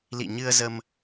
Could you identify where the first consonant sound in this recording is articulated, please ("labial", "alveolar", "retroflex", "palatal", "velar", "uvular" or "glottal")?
alveolar